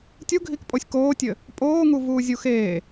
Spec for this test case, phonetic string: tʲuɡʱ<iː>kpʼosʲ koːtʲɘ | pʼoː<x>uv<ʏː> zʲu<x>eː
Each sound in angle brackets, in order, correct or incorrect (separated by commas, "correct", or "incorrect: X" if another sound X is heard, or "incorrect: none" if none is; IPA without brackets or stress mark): incorrect: i, incorrect: ŋ, incorrect: uː, correct